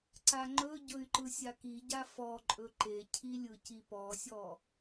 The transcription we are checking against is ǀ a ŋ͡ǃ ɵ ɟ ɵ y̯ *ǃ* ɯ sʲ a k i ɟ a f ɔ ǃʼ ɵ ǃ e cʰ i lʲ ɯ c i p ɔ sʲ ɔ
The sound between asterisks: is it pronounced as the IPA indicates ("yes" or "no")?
yes